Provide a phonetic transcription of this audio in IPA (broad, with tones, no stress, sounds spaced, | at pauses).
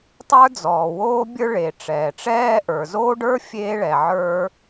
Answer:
tˤ ə˞˥ d͡z ɔː˩ w oː˥ bʲ ə˞˥ ɭ e˩ ʈ͡ʂ ɛː˩ ʈ͡ʂ ɛː˥ ʔ ə˞˩ z oː˥ ɖ ə˞˥ fʲ eː˥ ɭ ɛ˩ ʕ ə˞˥